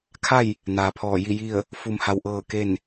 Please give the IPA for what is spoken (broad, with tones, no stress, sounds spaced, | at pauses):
kʰ a˥˨ j | n aː˩ pʰ ɔː˧˩ j i˥˨ j i˥˨ ə̯ | f u˧ m h a˧ w ʔ ɤː˥˨ k e˥˨ n